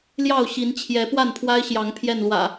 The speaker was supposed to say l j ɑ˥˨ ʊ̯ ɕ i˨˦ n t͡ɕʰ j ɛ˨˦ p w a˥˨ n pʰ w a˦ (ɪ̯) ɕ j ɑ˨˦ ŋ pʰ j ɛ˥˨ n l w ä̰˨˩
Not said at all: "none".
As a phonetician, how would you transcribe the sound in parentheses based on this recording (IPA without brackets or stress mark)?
ɪ̯